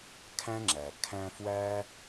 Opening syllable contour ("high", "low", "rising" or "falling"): high